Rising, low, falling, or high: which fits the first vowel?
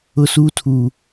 high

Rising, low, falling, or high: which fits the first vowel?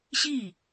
falling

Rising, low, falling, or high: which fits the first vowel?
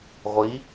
rising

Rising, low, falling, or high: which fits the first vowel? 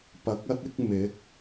rising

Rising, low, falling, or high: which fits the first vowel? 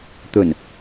low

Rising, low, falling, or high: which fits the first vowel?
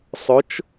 rising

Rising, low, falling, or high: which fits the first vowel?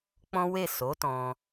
high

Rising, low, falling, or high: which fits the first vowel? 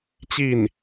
falling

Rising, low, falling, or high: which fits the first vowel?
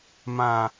low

